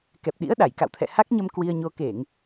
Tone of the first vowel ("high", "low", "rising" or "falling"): low